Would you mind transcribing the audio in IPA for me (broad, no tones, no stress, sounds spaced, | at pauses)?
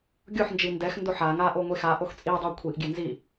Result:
ɡʲ o ħ n d͡ʒ i n d ɛ x n d o ħ a ŋ a ʔ o ŋʷ e x a ʔ o x t͡sʼ i dˤ ɑ kʷʰ i ʔ ɡʲ e n z i